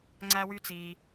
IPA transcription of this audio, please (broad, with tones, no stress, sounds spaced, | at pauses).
ŋ͡ǀ æ˨ w y˨ t͡s iː˩